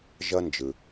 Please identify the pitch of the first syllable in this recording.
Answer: high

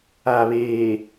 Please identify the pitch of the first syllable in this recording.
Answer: low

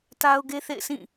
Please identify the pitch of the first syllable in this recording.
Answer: high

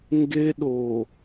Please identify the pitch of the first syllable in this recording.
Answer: high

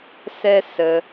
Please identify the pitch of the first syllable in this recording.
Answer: high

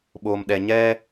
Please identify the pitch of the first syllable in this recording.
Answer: low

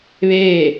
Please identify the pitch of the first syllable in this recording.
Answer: falling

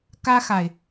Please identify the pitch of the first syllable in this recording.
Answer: high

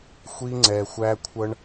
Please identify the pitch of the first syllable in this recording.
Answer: high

